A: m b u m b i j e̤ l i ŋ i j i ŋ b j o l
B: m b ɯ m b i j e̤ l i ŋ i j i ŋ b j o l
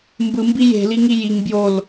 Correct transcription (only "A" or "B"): B